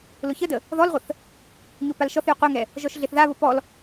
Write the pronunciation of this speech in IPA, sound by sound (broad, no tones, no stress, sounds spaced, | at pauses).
l ʊ ç ə d ə | ð ɔ l ʁʷ ə θ | ɲ o p a l ʃ ɔ θ j ʊ qʷ a ŋ ɛ | ʒ ɔ ʃ ɮ e θ ð a β ʊ p ɔ l